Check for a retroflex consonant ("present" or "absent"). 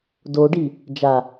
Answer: present